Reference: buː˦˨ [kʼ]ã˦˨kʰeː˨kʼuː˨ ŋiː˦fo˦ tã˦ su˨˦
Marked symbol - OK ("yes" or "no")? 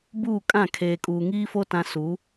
yes